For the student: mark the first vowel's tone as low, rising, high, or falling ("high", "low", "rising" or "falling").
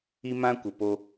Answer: high